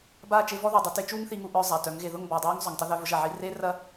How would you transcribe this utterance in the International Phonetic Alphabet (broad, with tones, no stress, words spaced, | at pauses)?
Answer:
baː˦˨t͡ʃe˧vɔ˦ ðʊː˨dˤʏ˧ te˧t͡ʃuː˦ŋθi˧ŋu˧ ʔœː˧ zˤa˨tœ˨˦ŋɣe˧ ðʊ˦˨ŋbɔː˨dˤaː˦ŋ zˤʏ˨ŋtˤʊ˦ ðœ˦vʊ˦ʒɐ˦˨ʕi˦ re˦rɐ˦